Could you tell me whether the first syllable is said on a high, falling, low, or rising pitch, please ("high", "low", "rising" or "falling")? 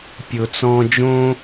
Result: low